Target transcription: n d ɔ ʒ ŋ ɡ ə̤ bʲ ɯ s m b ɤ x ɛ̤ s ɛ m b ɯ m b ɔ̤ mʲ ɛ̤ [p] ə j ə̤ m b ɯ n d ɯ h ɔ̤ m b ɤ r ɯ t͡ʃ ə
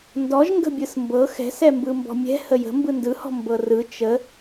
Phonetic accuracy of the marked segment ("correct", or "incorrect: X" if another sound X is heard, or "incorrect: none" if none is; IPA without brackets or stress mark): incorrect: h